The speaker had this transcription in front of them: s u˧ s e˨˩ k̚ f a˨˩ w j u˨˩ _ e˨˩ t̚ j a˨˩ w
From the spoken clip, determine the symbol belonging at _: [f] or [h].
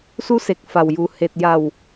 h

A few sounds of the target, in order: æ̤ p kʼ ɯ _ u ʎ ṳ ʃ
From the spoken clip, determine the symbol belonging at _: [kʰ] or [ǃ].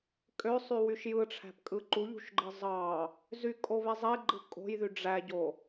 ǃ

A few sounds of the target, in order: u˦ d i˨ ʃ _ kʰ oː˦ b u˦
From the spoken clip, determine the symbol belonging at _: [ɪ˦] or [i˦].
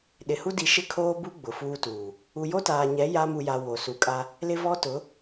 ɪ˦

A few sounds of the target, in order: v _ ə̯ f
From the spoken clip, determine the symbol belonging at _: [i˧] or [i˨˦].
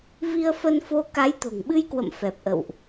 i˧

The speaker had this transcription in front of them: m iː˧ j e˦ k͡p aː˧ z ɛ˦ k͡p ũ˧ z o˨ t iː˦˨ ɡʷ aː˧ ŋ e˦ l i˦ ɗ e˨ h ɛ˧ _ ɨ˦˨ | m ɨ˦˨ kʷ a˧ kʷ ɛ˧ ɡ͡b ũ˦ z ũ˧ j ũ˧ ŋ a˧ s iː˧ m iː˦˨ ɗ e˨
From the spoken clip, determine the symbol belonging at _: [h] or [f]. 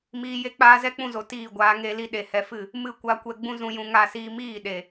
f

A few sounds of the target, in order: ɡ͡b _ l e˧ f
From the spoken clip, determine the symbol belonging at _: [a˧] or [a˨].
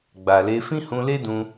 a˨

